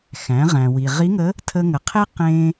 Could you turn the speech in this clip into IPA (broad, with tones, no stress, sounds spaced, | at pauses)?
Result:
x æ̃˩˧ ʁ æ̃˩ w i˩ ʁ i˧˥ ŋ ə˧˥ | tʰ ə˧ ŋ ə˩˧ qʰ e˥ q ẽ˧